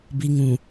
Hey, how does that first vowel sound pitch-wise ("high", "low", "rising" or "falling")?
low